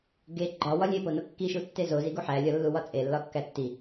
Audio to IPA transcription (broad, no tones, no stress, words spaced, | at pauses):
ɡe ɡ͡ǃɒwɒ lʲepono kːiʃutːe zoziɡu ħælʲɒlːuwɒ t͡sʼelːɒkːæ tːi